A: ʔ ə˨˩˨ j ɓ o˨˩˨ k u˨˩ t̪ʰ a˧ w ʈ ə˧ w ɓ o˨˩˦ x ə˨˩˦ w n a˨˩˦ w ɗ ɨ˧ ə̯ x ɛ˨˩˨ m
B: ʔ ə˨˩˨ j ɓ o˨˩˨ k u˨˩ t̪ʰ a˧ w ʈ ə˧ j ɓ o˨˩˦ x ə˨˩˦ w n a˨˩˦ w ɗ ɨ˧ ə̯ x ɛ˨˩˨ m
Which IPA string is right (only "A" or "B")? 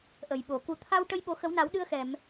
B